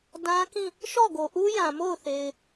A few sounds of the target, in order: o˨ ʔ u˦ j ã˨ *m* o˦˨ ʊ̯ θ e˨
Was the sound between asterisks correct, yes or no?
yes